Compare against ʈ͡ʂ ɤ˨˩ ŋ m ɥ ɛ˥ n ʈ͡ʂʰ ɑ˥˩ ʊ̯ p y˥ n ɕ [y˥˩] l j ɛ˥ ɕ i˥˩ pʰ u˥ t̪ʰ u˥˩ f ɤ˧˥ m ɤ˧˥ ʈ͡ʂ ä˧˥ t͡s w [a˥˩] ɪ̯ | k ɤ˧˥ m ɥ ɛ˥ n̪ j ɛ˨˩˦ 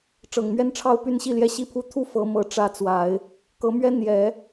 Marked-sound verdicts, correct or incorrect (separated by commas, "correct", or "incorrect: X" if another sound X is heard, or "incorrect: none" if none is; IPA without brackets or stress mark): incorrect: i˥˩, incorrect: a˨˩˦